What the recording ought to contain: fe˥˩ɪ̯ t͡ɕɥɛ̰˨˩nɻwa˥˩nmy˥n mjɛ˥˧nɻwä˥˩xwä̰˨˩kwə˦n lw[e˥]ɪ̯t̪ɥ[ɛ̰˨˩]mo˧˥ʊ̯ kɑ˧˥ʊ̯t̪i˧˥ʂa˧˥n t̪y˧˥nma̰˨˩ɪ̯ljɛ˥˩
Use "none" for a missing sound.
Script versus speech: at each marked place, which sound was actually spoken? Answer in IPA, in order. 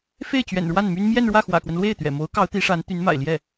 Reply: e˥˩, ɛ̰˨˩

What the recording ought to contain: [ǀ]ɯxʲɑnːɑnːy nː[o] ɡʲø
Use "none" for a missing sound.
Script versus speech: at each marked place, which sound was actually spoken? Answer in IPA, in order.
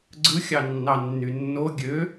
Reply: ɡ͡ǀ, o

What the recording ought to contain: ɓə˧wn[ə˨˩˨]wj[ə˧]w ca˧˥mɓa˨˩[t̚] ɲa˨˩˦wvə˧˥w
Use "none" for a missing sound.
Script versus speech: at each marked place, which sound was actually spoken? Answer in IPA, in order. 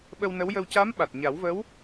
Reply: ə˧˥, ə˧, t̚

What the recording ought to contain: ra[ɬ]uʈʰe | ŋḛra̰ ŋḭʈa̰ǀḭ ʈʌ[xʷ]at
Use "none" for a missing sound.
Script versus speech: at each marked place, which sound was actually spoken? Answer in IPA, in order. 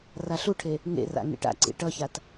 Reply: ɬ, ç

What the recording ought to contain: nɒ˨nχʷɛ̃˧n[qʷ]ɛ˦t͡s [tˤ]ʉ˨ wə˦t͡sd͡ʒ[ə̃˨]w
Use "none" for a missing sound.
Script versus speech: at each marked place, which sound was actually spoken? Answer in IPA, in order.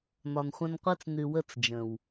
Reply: qʷ, n, ə̃˨

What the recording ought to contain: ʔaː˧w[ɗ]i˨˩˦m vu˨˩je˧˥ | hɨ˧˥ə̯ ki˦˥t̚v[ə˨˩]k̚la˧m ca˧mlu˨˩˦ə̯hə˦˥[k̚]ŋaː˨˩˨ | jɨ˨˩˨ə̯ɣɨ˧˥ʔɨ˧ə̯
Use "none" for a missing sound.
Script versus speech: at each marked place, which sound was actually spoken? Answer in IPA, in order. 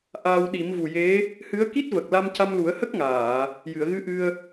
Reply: ɗ, ə˨˩, k̚

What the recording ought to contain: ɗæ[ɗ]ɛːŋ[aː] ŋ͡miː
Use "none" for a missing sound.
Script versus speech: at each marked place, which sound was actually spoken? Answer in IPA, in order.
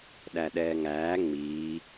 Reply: ɗ, æː

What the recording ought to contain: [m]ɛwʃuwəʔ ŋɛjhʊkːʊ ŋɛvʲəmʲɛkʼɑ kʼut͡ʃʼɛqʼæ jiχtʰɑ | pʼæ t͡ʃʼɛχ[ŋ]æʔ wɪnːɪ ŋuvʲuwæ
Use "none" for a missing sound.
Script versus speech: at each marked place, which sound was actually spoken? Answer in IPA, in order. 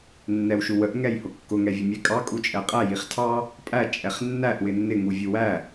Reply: nː, nː

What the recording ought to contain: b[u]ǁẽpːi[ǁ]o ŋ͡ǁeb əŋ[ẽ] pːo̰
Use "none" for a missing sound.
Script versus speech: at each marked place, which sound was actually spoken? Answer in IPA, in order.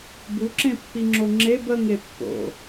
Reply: u, ŋ͡ǁ, e

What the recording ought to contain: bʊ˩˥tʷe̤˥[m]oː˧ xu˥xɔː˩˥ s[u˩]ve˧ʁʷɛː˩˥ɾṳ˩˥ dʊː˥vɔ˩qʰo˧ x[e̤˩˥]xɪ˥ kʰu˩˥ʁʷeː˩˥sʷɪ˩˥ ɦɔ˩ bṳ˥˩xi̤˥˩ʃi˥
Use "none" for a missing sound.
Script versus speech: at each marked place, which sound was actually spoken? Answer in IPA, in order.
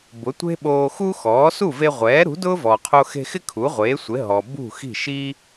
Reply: ɓ, u˥˩, e̤˧

